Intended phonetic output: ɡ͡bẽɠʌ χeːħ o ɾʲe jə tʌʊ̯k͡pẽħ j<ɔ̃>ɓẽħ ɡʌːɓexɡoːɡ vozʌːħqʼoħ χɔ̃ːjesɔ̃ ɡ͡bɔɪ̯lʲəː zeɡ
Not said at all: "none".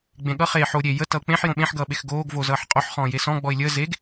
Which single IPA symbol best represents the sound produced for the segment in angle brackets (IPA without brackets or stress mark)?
õ